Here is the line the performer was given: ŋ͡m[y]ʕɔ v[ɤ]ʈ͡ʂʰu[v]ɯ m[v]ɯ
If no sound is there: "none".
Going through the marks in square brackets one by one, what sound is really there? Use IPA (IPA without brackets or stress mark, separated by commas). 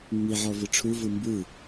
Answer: i, ɯ, v, b